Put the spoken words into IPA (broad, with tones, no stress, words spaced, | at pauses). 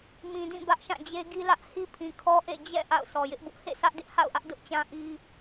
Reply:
mĩ˨dĩ˦˨ bä˦ʔʃã˦˨d͡ʑe˦ ɡi˦lä˦ʔ hi˦pʰĩ˨kʰɔ˦ʔḛ˦˨ d͡ʑɛ̰˦˨ ʔa̰˦˨ʊ̯sʰɔ˨jɪ˦ʔ bʊ˦ʔhḛ˦˨ sä˦ʔdɪ˦ʔha̰˦˨ʊ̯ʔä˦ʔ dʊ˦ʔt͡ɕã˦ ʔi˦